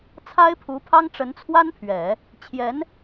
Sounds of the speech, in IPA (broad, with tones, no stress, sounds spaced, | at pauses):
t͡sʰ a˥ ɪ̯ pʰ u˧˥ pʰ ɑ˥ ŋ ʈ͡ʂ ə˧˥ n t͡sʰ w a˥ n pʰ ɥ ɛ˨˩˦ | t͡ɕʰ j ɛ˧˥ n